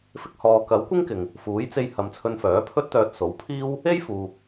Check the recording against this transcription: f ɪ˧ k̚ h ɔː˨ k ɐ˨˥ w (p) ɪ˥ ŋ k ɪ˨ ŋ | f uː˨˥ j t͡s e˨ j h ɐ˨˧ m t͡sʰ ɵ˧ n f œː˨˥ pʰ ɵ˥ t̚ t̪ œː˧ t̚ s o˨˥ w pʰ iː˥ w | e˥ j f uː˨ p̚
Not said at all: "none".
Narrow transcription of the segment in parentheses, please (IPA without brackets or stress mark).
kʷ